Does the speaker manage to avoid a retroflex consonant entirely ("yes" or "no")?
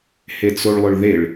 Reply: no